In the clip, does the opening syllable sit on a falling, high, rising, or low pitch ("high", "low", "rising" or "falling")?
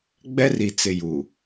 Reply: high